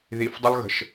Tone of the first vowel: low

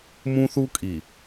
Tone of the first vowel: high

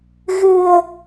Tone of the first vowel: low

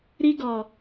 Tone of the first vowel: high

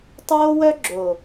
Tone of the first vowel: high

